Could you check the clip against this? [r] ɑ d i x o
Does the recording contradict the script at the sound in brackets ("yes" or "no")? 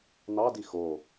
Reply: yes